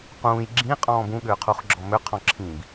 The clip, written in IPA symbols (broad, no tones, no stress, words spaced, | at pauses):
qũːj ɡ͡ǁĩqʼɔ̃ːb ũɠʏːqʰuχɡ͡ǁɔ mʏqʰɔ̃ǁʰĩːb